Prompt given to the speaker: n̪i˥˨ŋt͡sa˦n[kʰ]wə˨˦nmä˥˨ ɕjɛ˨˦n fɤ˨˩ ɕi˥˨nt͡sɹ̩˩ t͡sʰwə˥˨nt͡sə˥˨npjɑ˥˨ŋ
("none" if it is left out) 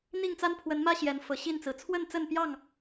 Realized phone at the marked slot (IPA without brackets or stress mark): pʰ